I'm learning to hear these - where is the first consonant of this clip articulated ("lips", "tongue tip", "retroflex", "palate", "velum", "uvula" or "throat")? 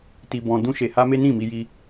tongue tip